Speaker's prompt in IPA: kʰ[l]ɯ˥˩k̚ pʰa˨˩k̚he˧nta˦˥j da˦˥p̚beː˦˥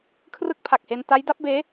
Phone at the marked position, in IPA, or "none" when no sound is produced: r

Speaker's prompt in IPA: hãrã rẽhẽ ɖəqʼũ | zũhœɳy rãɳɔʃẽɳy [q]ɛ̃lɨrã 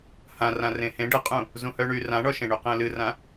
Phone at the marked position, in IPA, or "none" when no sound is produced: q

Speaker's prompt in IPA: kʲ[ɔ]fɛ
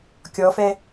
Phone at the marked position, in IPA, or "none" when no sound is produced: ɔ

